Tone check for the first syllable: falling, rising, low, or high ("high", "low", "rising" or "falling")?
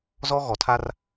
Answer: high